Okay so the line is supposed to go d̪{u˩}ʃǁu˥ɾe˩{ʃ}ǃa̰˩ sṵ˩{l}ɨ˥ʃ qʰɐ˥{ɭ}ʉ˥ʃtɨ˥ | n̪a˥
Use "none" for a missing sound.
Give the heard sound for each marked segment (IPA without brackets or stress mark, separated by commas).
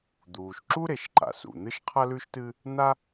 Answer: uː˩, ʃ, n̪, l